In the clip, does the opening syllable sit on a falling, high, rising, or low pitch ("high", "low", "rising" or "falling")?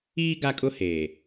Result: high